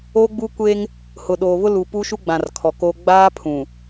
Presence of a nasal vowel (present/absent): present